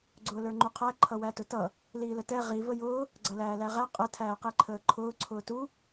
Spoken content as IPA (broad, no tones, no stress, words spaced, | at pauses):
ɡ͡ǀʊːlə˞ŋ͡ǃuqʰæ ǃʰʌwætʊtʌ | liːlətɛ ʁi vəjʊː | ɡ͡ǀʌlæːlæʁæ qʼə tʰæːqiǃʰəːǃʰʊː ǀʰʊːtu